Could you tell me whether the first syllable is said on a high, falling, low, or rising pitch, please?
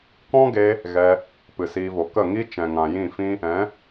high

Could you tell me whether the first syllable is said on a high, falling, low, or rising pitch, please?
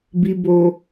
low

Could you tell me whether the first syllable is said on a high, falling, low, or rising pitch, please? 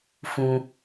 high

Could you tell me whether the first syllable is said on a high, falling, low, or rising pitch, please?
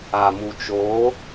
low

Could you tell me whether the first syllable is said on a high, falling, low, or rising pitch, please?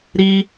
high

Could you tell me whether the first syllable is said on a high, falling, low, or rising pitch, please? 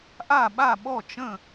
falling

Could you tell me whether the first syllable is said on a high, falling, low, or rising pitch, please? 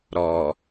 low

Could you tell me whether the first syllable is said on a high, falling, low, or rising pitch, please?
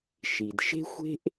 low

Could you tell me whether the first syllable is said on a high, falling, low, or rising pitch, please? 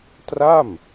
falling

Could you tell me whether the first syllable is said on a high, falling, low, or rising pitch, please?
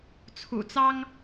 low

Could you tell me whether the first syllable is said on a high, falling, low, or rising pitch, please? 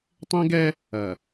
high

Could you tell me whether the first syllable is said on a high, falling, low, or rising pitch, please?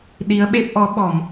rising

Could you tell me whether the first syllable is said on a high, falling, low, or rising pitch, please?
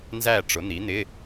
falling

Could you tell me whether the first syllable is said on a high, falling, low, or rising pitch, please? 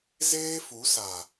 high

